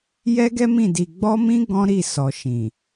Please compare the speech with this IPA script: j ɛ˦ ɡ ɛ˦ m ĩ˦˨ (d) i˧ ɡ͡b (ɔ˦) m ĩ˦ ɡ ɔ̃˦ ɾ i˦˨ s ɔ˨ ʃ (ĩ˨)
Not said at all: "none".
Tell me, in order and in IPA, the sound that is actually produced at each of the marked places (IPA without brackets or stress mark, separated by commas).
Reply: d, ɔ˦, ĩ˨